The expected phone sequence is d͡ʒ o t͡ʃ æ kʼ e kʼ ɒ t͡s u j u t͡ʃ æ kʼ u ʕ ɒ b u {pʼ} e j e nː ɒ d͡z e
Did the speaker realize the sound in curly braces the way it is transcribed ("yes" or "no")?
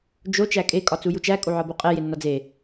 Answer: no